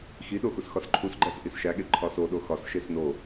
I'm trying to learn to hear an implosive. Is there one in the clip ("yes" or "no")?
yes